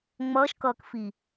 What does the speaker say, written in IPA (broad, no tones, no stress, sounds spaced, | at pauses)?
ŋ͡m ʌː ʃ k ʌː k f i